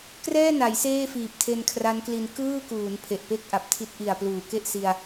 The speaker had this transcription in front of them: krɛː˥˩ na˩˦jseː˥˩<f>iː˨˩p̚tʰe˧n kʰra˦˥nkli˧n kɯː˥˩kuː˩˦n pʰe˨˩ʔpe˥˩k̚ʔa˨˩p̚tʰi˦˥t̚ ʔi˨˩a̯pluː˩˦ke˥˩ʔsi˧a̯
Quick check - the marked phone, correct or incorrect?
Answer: correct